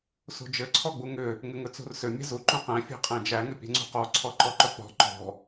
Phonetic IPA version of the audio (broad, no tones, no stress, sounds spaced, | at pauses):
s ṳ d͡ʒ ɘ ǀʰ ɔ ɡ͡b u ŋ ʏ | ŋ ɘ ŋ ɵ t͡s ṳ r s ʏ mʲ ɛ̤ z u ǃ ũ q æ̃ fʲ æ̤ qʼ æ̃ d͡ʒ æ ŋ ʏ pʲ ɛ̤ ŋ͡ǀ ṳ q ɔ ǀʰ ɔ ǃ ɔ ǃ ɵ k͡p ɔ̤ ǃ ɔ̤